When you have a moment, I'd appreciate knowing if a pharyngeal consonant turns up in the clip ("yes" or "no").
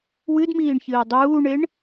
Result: no